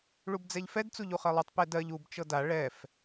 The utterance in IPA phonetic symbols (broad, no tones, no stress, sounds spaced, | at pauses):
ɭ u b d͡z ɛ ʎ f ɛ d t͡s u ʎ u χ ɜ lˠ u tˤ p ɛ d ɜ ʎ u b t͡ʃ ɤ d a ɭ ɛ f